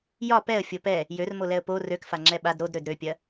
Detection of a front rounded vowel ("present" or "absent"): present